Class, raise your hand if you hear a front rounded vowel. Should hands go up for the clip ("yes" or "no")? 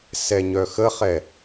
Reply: yes